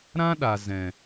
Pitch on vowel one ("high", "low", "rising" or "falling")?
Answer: high